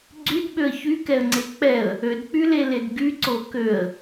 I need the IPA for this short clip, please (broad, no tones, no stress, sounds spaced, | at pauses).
ɡ͡ǀ y d ɓ ø ə̯ ç y k ɛ ə̯ ŋ͡ǀ e k͡p ɛ ə̯ | ø d k͡p y l e l e d ɡ y ǀ o k ø ə̯